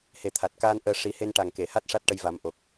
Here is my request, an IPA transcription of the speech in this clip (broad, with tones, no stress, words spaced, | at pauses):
he˨˩t̪ʰa˨˩t̚kaː˧n ʔəː˧ ʂi˨˩˦he˧nʈa˨˩ŋke˨˩˨ ha˦˥t̚ ʂa˦˥t̚ʈə˧jva˨˩˦m ʔo˨˩k̚